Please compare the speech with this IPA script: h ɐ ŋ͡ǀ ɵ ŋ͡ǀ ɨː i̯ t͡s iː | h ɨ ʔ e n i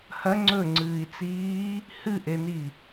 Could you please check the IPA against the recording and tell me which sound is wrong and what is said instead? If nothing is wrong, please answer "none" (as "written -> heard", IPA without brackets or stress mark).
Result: none